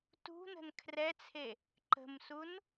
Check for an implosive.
absent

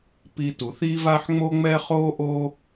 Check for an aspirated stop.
absent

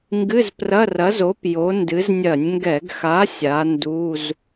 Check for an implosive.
absent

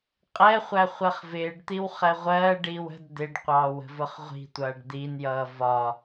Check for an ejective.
present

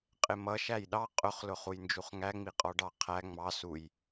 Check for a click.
absent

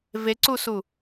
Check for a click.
present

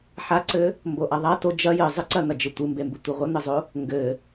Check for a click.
present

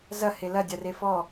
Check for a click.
absent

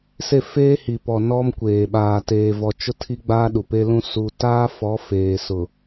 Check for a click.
absent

